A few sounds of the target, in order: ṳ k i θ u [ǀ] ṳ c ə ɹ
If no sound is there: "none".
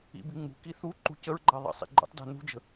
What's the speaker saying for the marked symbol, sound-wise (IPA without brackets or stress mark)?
ǃ